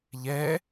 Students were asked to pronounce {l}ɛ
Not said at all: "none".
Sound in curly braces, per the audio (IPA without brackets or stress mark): ʎ